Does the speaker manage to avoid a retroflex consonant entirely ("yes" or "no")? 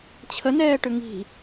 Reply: no